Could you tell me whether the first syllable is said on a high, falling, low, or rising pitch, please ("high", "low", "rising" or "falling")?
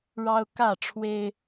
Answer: high